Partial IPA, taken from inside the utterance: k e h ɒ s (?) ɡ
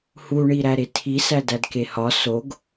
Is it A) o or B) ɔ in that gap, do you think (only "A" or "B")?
A